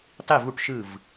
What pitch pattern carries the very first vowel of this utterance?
falling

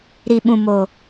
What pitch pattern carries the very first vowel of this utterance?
low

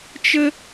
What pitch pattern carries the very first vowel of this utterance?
high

